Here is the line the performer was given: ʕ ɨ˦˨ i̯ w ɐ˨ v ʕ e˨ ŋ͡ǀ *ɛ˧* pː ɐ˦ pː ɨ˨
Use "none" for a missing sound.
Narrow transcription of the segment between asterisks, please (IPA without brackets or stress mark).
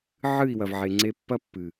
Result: e˧